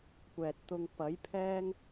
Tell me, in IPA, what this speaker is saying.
kʷ ɛː˨ t̚ t̪ ʊ˧ ŋ p ɐ˨˥ j pʰ ɛː˥ ŋ

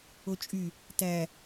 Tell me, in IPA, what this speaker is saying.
o t͡ʃʼ y | t æ

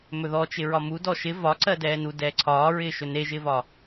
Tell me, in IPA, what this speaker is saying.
m ɵ ð ɔ t͡ʃ ɪ ɹ ɒ m u d ɔ ʃ ɪ v ɒ ǀ ɜ d ɛː n u d ɛː ǀʰ ɒː ɹ ɪː ʃ ɵ n e ʒ ɪː v ɒ

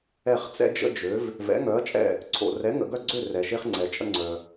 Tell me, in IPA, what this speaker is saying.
ɛ˦˨ χ t͡s ɛ̰˦ d͡ʒ ə̰˦ d͡ʒ ø˨˦ v | v ɛ̰˨˦ ŋ œ˨˦ ɐ̯ t͡ʃʼ ɛ̰˦˨ | ǀʰ o̰˨ r ɛ˨˦ ŋ ə̰˨ ɡ œ˦˨ ɡ͡ǀ ø˦˨ r ɛ˨ ʃ e˦ χ ŋ͡ǀ ɛ˨ t͡ʃʼ ə̰˦ ŋ͡ǀ œ˨

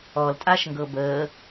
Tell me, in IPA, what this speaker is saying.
ɔ l tʼ a ʃ ŋ ɡ ɤ b əː

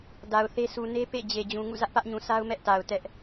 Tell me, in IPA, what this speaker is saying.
d a˨ ʊ̯ θ e˦ s u˨ n e˦ p ḛ˦˨ d͡ʑ e˨ d͡ʑ ũ˨ ŋ ṵ˦˨ z ä˦ ʔ p ä˦ ʔ ɲ ũ˨ sʰ a˦ ʊ̯ m ɛ˦ ʔ t a˨ ʊ̯ t ɛ˦ ʔ

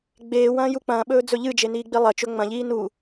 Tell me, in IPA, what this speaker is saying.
ɡ͡b eː w ɐ̃ː j u k͡p ɐ̃ː ɓ ɵː d͡z ɵ ʎ ɨ d͡ʒ e n iː ɡ͡b i lˠ ɐ t͡ʃ ɵ ŋ͡m ɐ̃ ʎ iː n u

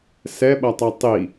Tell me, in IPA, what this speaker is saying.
s ɛ ɓ ɐ tˤ ɛ tˤ i

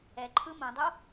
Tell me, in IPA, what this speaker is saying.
ɛ ǃʰ ɯ m õ dˤ o

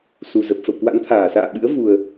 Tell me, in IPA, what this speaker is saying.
s u˨˩ z ə˨˩ p̚ f ə̰˧˨ w k w a̰˧˥ n t̪ʰ aː˧˩ s a̰ː˧˨ ɓ ɨ̰˧˥ ə̯ v u˨˩ ə̯

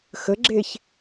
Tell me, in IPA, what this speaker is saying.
x ə ɡ͡ǁ e ç

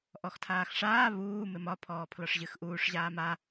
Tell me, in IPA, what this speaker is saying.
ʔ ɔ x tʰ aː x ʂ aː β uː m ɪ m ɒ pʰ ɔː pʰ l ɒ ʂ ʑ ɨ x ʔ uː ʂ ʑ aː m a

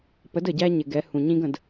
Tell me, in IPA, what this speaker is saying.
p ə˨˦ d ə˨ ɟ æ˦ ɲ ɪ˨ ɡ ɛ˨˦ h ũ˨ ɲ ĩ˦ ɡ ə̃˨ d

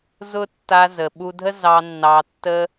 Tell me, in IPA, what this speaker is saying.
z ʊ˦ tː a˧ z ə˨ ɓ u˧ dʱ ə˦ z ɑ˧ nː ɑ˧ tː ə˦

